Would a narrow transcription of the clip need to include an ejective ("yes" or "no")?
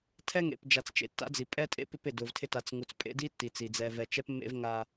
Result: yes